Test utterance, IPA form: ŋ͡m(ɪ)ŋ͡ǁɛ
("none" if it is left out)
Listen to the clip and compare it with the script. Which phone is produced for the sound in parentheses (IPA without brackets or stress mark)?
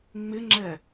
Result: ɪ